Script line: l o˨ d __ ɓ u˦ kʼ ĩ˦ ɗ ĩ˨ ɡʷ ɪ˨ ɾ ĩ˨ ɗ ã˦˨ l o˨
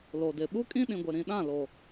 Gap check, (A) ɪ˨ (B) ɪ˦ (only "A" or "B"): A